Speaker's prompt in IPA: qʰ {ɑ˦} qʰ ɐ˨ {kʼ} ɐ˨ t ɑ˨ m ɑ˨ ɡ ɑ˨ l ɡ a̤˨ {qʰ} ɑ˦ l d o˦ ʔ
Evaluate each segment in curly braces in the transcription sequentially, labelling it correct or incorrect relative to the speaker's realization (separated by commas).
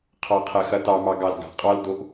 incorrect, incorrect, incorrect